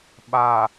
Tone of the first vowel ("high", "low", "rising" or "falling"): low